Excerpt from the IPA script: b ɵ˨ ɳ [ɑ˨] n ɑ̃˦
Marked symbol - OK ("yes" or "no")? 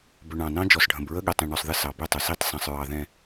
no